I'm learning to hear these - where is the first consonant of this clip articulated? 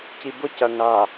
palate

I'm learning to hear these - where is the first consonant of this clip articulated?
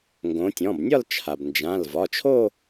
velum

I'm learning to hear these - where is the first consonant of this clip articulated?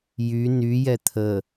palate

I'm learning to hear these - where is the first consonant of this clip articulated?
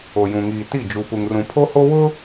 palate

